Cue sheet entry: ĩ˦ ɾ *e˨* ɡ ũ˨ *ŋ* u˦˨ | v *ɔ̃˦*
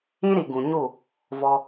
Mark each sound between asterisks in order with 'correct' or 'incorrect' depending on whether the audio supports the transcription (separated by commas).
incorrect, incorrect, incorrect